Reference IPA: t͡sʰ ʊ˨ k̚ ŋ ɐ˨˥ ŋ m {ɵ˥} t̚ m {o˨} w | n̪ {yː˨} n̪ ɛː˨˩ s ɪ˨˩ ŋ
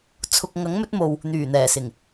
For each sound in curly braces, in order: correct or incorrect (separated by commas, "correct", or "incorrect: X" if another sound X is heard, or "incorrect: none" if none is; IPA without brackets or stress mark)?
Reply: incorrect: ɵ˨˥, correct, incorrect: yː˨˩